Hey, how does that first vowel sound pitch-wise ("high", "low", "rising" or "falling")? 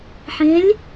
rising